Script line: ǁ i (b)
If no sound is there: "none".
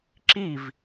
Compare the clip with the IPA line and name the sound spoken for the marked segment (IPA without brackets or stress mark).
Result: v